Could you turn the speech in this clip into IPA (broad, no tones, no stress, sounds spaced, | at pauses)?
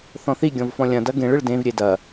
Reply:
θ ɔ̃ θ i ɡʲ ɔ̃ v f ɔ̃ lʲ ɐ̃ d ɐ ɡ ẽ ɭ ɨ ɭ d ẽ v ɾʲ e d ɐ